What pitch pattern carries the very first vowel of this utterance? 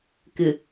low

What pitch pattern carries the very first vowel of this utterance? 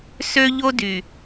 high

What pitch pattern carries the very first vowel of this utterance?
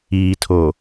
low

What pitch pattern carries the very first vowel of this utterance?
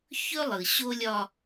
high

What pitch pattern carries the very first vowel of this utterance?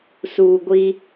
low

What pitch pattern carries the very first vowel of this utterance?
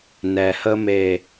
low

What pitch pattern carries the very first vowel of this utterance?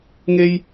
high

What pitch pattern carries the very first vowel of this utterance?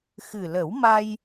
low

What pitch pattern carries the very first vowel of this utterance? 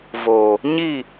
low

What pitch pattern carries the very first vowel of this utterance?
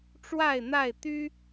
falling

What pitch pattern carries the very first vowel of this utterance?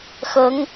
rising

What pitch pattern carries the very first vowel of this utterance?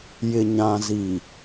low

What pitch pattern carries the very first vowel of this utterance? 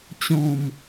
falling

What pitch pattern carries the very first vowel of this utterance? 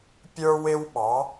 high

